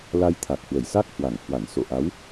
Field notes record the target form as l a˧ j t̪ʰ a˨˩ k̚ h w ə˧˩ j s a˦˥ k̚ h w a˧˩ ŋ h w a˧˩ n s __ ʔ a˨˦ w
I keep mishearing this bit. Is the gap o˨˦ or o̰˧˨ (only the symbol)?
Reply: o̰˧˨